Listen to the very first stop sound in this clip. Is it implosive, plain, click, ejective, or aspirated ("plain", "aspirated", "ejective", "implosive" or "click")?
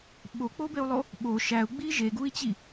implosive